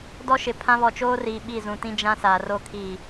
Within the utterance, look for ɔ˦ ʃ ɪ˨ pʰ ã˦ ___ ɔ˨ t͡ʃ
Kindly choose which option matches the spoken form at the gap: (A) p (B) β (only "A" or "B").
B